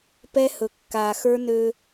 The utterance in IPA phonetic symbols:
p ɛ˦ h ɵ˨ kː a˨ x ə˞˦ n ø˦

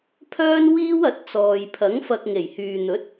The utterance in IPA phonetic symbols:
pʰ œː˥ n w iː˥ w ɐ˨˥ t̚ t͡s ɔː˨ j pʰ ɐ˨˥ ŋ f ɐ˧ k̚ ŋ e˨˩ j h yː˨ n̪ ɵ˨˥ t̚

